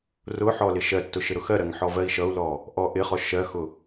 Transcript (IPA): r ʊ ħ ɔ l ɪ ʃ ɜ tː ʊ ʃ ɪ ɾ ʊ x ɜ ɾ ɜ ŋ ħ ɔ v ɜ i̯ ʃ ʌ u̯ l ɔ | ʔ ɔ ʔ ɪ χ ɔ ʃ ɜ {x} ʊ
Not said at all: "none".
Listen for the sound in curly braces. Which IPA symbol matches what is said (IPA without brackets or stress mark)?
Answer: x